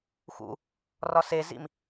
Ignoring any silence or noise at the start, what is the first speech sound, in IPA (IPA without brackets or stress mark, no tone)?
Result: x